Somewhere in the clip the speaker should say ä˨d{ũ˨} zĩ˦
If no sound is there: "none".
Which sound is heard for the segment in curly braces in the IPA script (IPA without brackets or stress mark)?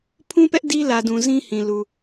ũ˨